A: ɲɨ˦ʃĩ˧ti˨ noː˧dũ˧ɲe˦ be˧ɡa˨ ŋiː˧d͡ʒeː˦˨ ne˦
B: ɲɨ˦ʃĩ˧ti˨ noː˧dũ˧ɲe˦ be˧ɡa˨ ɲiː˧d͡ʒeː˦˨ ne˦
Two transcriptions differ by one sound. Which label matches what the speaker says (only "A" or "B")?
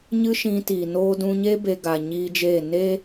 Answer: B